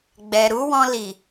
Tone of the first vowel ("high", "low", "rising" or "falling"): low